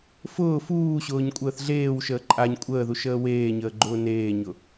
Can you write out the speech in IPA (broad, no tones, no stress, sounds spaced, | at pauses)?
f ʊː f uː ɕ ʊː ɲ kʷʼ əː θ ɮ eː w ʃ əː ǃʼ a ɲ kʷʼ əː ð u ʃ əː w eː ɲ əː ɡ͡ǃ ʊː n eː ɲ ʊ